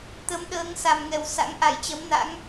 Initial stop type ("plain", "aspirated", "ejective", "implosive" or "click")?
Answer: plain